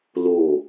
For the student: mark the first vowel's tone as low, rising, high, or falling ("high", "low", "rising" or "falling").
low